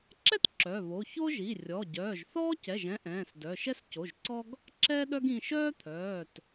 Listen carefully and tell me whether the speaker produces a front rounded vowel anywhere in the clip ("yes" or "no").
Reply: yes